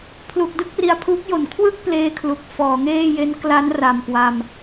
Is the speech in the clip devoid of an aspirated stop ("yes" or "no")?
no